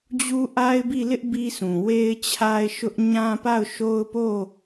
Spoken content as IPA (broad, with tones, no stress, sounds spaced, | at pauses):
d͡ʑ u˦ ʔ a˦ ɪ̯ b i˦˨ l ɪ˦ ʔ b i˦ s ũ˨ w e˦ ɪ̯ t͡ɕʰ a˦ ɪ̯ ʃ ʊ˦ ʔ ɲ ã˦ p a˦˨ ʊ̯ ʃ o˦ ʊ̯ p o˦˨